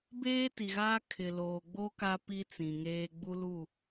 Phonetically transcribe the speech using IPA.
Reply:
b eː˦ t i˨ ɣ aː˦ kʰ ɪ˨ l oː˨ ɡ͡b o˦ k a˦ p i˦ t͡s ĩ˨ ŋ eː˦ ɡ͡b u˦ l u˦˨

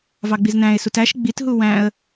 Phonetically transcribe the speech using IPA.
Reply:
v ɑ ɡ͡b i z n æ̃ ɪ̯ s u t æ ʃ ɡ͡b i t ɦ u w æ̃ ə̯

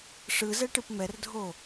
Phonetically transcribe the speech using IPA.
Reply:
ʂ ɯ z ɛ ʈ ɯ p m ɛ r dʱ o

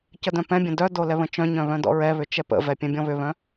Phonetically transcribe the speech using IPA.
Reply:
c ə d œ̃ p ɛ̃ bʲ ə̃ d œ d o l ɛ β ə̃ t͡ʃ œ̃ ɲ œ̃ β œ̃ d ɔ̰ ɹ ɛ β ʏ t͡ʃ ɛ p ə̰ v ɛ pʲ ɛ̃ bʲ ɔ̃ β ʏ β œ̃

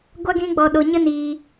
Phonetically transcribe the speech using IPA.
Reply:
ɡʷ a˦ ɡ ĩ˦ ɡ͡b ɔ˧ ɗ o˧ ɲ ə˦ n iː˧

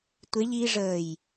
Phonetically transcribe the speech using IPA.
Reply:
tʷ e ʎ i ʐ əː j

